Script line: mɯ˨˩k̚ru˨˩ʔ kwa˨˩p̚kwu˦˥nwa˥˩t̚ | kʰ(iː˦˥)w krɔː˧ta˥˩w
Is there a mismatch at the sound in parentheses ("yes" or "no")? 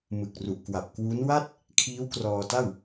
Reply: no